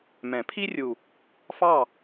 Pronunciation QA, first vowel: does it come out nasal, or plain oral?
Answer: nasal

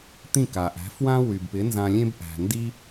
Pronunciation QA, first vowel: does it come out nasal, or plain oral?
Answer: nasal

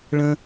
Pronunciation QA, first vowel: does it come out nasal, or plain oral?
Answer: nasal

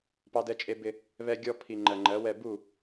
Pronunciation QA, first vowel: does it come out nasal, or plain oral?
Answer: oral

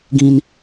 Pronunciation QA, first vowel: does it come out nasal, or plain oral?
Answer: nasal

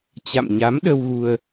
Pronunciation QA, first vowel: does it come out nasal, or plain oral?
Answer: oral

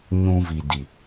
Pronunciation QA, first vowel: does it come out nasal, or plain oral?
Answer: nasal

